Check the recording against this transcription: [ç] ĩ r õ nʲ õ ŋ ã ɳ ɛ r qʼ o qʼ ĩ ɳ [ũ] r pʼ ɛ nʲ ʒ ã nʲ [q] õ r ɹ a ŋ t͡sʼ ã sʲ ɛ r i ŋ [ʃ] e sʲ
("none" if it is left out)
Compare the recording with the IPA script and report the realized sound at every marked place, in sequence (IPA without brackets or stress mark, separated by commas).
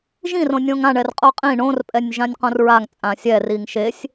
ʒ, õ, q, ʃ